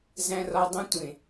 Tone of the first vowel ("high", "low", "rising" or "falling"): low